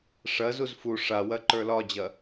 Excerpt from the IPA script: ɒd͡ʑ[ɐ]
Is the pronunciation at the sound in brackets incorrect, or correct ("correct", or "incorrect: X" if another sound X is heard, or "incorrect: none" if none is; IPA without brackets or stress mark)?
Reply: correct